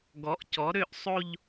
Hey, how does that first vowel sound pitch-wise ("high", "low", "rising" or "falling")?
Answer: rising